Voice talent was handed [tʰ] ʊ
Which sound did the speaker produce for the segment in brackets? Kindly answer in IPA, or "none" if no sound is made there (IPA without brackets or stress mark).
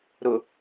ɾ